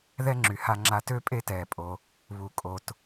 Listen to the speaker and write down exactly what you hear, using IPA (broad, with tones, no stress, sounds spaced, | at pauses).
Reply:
ð ɛ˥ ŋ͡ǁ y˩ h a˧ ŋ͡ǁ a˧ t ø˥ pʼ e˥ t ɛː˩ pʼ o˩ | β u˩ kʼ o˩ t